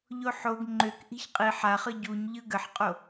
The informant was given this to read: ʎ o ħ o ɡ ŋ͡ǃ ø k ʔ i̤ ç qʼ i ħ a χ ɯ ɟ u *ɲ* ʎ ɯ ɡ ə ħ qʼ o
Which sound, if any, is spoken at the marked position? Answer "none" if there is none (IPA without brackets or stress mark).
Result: ɲ